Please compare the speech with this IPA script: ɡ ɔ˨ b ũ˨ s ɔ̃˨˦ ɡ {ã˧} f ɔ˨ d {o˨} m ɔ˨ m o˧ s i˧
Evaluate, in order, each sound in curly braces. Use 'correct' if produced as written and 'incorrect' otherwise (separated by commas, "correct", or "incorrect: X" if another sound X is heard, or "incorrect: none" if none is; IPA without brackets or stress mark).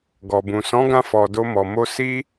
correct, incorrect: o˧